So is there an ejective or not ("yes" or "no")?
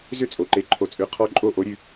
yes